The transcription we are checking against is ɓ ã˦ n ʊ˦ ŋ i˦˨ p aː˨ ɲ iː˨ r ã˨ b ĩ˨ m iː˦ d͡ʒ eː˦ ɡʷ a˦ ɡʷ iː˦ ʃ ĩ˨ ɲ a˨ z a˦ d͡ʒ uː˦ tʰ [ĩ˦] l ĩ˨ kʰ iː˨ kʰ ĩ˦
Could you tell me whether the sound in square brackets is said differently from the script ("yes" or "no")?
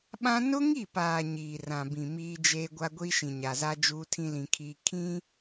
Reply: no